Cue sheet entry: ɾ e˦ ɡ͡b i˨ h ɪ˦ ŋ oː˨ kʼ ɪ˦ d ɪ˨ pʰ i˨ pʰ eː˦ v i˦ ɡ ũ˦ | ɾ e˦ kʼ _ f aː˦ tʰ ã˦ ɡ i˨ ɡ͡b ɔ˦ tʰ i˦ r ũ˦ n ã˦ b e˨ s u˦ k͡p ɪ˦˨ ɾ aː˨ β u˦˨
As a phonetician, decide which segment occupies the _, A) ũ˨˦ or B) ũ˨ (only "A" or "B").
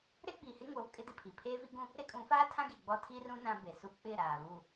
A